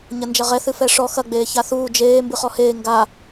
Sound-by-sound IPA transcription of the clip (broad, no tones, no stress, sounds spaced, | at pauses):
ɲ ɐ n d͡ʒ ɐ ʁ ɛ θ ɨ f ɛ ʂ ɔ x ɐ ɡ͡b eː ç a θ uː d͡ʒ eː m b ɨ χ ɔ h eː ŋ ɡ a